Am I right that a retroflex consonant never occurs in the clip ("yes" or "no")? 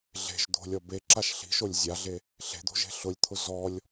yes